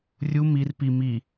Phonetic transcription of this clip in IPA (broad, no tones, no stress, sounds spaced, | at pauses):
rʲ u m i r p i m i